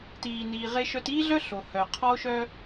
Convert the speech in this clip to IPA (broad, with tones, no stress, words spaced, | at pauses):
tiː˨ niː˨ʁe˦ʃœ˦t iː˦ɮœ˦ ɬo˨hœ˨ qʰɔ˦o̯ʃœ˦